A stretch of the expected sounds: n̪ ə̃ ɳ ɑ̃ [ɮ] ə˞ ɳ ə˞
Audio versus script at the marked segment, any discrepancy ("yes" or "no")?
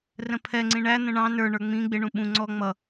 yes